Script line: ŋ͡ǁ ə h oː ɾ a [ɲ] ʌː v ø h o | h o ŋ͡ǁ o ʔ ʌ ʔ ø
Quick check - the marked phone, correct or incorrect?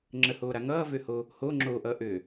incorrect